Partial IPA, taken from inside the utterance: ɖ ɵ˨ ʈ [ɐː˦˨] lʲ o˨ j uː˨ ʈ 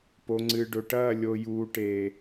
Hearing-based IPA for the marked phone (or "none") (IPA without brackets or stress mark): ɐː˦˨